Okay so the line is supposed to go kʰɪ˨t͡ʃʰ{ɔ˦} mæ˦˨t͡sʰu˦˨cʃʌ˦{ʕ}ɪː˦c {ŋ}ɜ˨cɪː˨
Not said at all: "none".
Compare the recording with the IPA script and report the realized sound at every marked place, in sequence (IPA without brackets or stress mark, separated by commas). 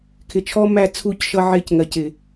ɔ˦, ʕ, ŋ